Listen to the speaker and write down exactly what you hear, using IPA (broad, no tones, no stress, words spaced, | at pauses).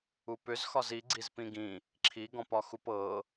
upʏzxɒz iɡ͡ǀiz pĩɡĩ | ǁʰiɡɔ̃p ɒxupɤ